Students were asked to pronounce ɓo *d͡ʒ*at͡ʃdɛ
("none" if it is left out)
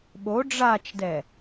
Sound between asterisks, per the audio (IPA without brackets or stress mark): ɖ͡ʐ